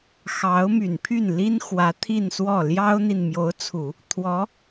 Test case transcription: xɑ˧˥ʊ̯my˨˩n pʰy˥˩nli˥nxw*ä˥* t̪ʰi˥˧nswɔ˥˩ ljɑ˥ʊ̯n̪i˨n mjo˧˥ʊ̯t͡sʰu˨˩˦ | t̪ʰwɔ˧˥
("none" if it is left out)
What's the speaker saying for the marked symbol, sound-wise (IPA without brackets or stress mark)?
ä˧˥